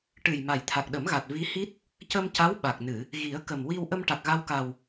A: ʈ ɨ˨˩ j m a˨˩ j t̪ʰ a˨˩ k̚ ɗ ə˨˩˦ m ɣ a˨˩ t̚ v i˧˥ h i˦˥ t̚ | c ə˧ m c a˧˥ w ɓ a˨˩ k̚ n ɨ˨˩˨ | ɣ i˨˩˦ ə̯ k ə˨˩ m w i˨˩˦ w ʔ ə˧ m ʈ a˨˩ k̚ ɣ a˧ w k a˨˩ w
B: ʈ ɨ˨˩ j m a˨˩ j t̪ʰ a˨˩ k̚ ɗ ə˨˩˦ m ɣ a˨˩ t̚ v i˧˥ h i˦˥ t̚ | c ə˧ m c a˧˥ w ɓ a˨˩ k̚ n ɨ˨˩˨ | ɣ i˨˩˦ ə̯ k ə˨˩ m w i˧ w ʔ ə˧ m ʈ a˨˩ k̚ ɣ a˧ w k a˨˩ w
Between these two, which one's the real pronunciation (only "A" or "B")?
B